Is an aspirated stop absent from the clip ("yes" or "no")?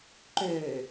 yes